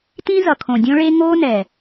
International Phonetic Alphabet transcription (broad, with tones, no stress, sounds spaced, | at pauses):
t ĩ˦ z ʌ˨ kʰ õ˨ dʲ õ˦ ɭ e˦ ŋ oː˦ n ɛ˨